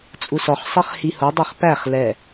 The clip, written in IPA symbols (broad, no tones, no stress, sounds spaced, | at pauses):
t͡sʼ u s ɔ χ sˤ ɛ χ h i h o dˤ ɛ χ p æ χ l ɛ